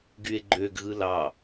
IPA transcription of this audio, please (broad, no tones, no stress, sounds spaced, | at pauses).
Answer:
ɡ y e̯ ɡ͡ǃ ø ɡ ɣ ɯ l ɑ